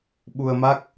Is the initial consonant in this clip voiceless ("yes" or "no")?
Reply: no